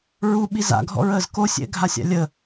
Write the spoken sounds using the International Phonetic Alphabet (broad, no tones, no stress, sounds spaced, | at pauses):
ɹ u ɓ i z a̰ ɡʱ ɔ̰ ɹ əː z k o sʲ ɛ̰ ɡʱ a sʲ a̰ lʲ ə